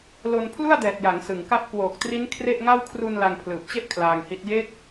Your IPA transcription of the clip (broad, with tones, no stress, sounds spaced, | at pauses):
l o˧ n pʰ l u˥˩ a̯ d ɛː˨˩ t̚ j a˩˦ ŋ s ɯ˨˩ ŋ k a˥˩ p̚ k w oː˨˩ k̚ t r i˦˥ n kʰ r e˥˩ ʔ ŋ a˥˩ w kʰ r u˧ n l a˧ ŋ pʰ l ɯː˨˩ p̚ t͡ɕ e˥˩ ʔ kʰ l aː˧ ŋ h i˦˥ t̚ j e˦˥ k̚